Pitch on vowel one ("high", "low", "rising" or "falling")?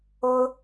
high